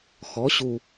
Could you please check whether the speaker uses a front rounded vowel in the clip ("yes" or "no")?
no